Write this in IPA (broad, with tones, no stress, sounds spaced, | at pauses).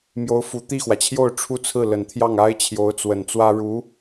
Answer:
m j o˧˥ ʊ̯ f u˨˩ t̪ i˥˩ x w ä˩ t͡ɕʰ j o˥˧ ʊ̯ ʈ͡ʂʰ u˥˧ t͡sʰ ɹ̩˥˩ l ə˨˩ n t̪ʰ j ɑ˥˩ ŋ a˥ ɪ̯ t͡ɕʰ j o˧˥ ʊ̯ t͡s w ə˨˩ n t͡s w ä˥ ɻ u˧˥